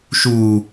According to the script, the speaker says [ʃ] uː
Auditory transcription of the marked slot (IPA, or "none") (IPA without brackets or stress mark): ʃ